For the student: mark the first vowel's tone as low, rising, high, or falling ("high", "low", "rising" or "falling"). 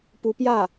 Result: rising